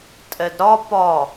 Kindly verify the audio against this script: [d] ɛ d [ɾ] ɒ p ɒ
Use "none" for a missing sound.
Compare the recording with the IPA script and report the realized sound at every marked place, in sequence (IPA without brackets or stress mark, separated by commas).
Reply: tʼ, ɾ